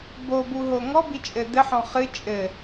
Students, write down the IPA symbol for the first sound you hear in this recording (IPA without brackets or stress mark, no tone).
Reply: b